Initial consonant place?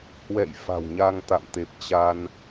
glottal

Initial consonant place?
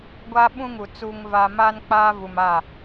velar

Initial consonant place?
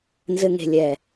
alveolar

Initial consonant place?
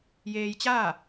palatal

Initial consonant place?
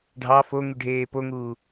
retroflex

